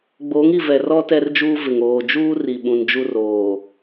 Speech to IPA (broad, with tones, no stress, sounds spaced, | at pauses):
ɡ͡b oː˨˦ ŋ i˨ v ɛ˨ r ɔ˦ t ɛ˦ r d͡ʒ uː˦ v ɪ˨ ŋ oː˨ d͡ʒ uː˦ r i˨ ɓ ũ˨ n d͡ʒ u˦ r oː˨